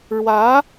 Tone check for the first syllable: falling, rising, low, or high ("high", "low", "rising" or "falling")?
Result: rising